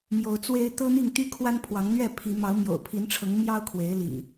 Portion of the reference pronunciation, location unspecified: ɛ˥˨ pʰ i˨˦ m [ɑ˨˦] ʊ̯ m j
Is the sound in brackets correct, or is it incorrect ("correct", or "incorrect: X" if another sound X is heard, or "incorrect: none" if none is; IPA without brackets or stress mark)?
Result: correct